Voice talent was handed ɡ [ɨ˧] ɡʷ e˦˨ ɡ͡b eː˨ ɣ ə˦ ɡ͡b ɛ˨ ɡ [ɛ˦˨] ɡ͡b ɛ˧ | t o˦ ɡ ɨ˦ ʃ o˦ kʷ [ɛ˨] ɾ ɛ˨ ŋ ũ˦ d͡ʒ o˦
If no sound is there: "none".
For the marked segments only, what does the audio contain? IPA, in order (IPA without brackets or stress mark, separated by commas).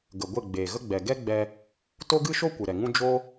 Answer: ə˧, ɛ˦, ɨ˨